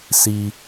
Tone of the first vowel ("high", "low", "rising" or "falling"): low